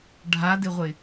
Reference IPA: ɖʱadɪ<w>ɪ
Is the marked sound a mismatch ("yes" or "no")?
yes